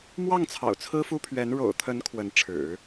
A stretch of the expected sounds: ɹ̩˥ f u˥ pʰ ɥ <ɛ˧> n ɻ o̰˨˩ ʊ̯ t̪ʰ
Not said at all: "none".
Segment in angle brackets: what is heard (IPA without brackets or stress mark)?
ɛ˧˥